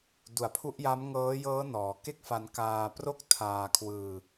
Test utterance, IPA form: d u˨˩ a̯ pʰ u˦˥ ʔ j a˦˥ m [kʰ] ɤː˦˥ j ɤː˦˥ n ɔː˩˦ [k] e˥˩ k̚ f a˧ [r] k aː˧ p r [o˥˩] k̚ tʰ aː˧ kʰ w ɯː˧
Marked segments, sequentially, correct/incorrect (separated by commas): incorrect, correct, incorrect, correct